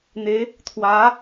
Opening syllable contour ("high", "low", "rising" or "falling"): rising